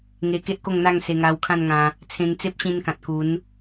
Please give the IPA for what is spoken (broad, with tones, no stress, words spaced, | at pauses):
ŋe˧ ke˦ʔko˥˧ŋn̪a˥˧ŋ se˧ŋa˧wkʰã˥˧nŋã˧ | t͡sʰẽ˧ŋt͡se˦p̚ɕĩ˧n kã˨t̚ku˨˦n